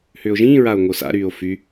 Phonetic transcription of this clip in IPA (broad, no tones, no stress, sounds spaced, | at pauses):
h ʏː o̯ ʒ ĩː ɹ a o̯ ŋ o s a̰ ɾ yː o̯ f y